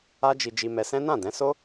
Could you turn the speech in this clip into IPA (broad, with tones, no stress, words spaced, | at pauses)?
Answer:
a˦d͡ʒi˧ d͡ʒi˧mɛ˧sɛ̃˦ nã˦˨dɛ̃˨˦so˦